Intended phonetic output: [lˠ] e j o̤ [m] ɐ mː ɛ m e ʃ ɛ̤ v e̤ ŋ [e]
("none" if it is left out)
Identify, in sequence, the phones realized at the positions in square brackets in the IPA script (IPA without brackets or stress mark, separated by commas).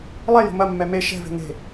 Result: lˠ, m, e̤